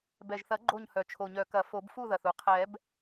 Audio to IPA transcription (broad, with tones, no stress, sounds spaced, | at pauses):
b ɛ˨˩ ʒ θ ɐ˨˩˦ ɡ͡ǃ o˥˨ ɲ h œ˨˩ t͡ʃʰ o˨˩ ɲ œ˨˩˦ k ɐ˨˩˦ f o˨˩˦ b f u˥˨ ð ɐ˨˩ θ u˨˩˦ qʰ ɛ˨˩˦ b